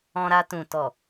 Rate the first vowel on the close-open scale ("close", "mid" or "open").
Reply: mid